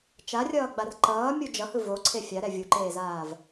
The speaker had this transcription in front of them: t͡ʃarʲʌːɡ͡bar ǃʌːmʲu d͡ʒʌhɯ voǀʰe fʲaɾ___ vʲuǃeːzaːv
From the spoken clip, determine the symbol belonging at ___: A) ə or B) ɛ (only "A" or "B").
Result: B